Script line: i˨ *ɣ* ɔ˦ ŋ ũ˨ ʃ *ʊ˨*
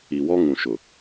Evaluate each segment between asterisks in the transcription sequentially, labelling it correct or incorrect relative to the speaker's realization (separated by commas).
incorrect, correct